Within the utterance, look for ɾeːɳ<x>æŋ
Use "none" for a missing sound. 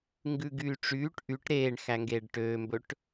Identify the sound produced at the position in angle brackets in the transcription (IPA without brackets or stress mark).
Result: x